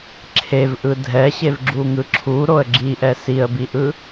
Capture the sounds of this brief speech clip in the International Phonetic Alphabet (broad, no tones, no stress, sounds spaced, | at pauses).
ǁʰ e v ʔ ɯ dʱ ɛ ɕ e v ɡ͡ǁ u ŋ ɯ ǁʰ u ɾ o ə̯ ɡ͡ǁ i ʔ ɛ s i ə̯ b i ʔ ɯ